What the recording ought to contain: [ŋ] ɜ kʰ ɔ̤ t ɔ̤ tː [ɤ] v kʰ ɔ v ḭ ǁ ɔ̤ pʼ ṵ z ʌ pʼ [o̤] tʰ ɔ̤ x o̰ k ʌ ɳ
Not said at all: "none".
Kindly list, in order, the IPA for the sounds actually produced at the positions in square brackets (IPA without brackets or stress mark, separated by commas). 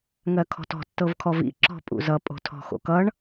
ŋ, ɤ, o̤